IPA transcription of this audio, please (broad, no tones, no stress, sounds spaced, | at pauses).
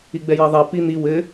i ɡ͡b ɛ j ɛ ðˤ ɛ p i n̪ i w ɘ